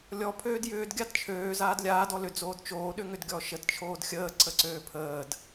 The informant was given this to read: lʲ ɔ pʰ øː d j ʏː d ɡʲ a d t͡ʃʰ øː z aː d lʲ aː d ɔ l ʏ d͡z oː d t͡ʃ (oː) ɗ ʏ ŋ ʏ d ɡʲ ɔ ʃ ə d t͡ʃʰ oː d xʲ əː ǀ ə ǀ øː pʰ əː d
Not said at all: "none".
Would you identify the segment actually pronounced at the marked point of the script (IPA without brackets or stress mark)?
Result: oː